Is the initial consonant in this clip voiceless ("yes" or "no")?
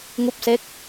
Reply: no